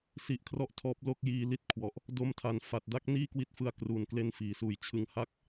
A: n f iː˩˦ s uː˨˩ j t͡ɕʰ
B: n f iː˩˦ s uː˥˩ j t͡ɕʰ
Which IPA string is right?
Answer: A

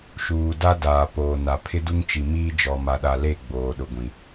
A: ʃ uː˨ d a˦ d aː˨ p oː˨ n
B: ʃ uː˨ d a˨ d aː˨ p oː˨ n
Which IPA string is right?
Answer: A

